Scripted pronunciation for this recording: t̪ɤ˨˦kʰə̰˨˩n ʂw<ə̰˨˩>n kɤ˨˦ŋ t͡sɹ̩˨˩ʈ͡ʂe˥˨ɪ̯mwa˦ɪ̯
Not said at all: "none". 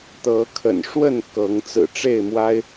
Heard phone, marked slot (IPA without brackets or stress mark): ə˥˨